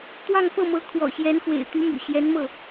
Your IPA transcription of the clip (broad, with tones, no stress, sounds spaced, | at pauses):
t̪ w ɑ˥˧ ŋ f ɤ˥˩ m ɤ˧˥ kʰ w ɔ̰˨˩ ɕ j ɛ˧˥ n x w ḛ˨˩ ɪ̯ t̪ y˧˥ m y̰˨˩ ɕ j ɛ˧˥ n m ɤ˥˩